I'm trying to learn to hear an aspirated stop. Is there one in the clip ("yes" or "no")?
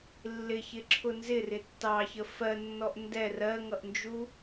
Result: yes